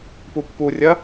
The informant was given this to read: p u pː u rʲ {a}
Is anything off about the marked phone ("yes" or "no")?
yes